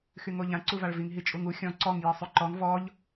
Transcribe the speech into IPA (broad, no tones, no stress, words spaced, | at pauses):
xyŋoʎã ǀuvaɭviŋ ɦit͡ʃʼuŋu xʲɔ̃ ǀɔŋ jisˤyǃɔŋ vɔʎ